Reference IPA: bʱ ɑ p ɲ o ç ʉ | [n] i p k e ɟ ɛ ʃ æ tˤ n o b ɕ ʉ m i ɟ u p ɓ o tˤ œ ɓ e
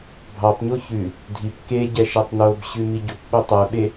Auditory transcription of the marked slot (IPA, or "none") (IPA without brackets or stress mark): dʱ